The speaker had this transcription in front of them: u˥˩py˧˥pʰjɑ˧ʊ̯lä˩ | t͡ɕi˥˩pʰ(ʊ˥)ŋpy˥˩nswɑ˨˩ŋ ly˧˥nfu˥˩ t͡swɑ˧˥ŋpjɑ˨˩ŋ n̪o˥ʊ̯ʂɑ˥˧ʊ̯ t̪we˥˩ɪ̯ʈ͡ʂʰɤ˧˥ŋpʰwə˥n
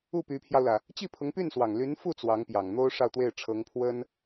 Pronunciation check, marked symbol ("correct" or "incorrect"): incorrect